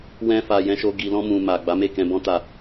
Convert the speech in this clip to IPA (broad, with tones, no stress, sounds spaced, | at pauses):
w ɛ̃˧ f a˨ j ɛ̃˧ ʃ o˧ ɡ i˨ l ɔ̃˧ m ũ˨ m a˨ ɡ͡b a˨˦ m e˦˨ k ɛ̃˧ b ɔ̃˦ t a˦˨